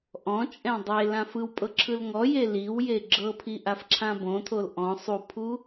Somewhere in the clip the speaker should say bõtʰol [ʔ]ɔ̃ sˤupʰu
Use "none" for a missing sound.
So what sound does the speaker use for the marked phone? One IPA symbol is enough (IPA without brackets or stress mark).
ʔ